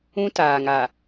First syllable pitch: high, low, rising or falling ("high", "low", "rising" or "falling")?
high